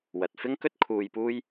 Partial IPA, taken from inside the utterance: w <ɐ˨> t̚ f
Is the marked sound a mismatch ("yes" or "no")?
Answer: no